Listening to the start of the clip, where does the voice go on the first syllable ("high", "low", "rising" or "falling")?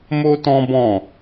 high